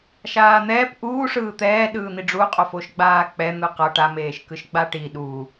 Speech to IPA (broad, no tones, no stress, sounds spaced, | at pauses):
ʃ aː n̪ ɛː p ʔ uː ʂ ɯː t̪ ɛː ɗ ɯː n̪ i ɖ͡ʐ u qʼ o f o ʃ ɡ͡b aː k͡p ɛ n̪ ɯ q ʌ ʈ a m eː ʃ k ɯ ʃ ɡ͡b a ʈ i ɗ uː